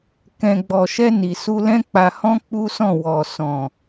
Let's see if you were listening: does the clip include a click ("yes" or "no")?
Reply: no